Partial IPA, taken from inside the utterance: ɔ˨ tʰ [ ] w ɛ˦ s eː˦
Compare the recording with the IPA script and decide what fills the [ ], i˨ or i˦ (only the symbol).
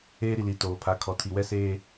i˨